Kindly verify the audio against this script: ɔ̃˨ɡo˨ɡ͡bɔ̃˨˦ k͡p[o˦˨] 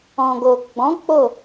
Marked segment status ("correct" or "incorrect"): correct